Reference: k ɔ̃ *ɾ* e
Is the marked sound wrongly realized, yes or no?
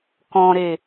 no